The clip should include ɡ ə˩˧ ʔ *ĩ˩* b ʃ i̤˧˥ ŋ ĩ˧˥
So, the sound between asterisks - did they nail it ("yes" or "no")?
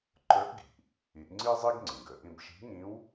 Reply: no